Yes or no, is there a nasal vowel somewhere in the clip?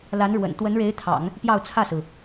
no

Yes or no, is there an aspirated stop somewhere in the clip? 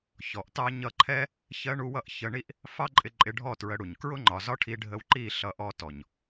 yes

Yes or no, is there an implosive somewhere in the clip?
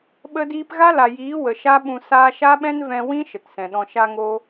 yes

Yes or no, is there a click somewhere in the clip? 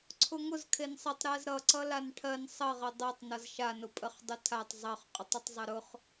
yes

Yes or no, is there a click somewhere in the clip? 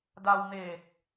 no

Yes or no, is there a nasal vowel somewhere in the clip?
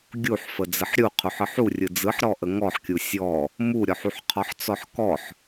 no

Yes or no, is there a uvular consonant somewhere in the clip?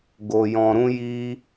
no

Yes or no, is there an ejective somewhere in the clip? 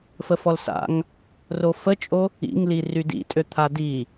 yes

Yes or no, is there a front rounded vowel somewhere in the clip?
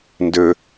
yes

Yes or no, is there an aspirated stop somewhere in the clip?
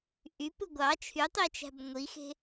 yes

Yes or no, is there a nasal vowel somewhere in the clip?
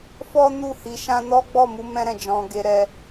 yes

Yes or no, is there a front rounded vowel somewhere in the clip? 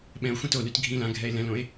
yes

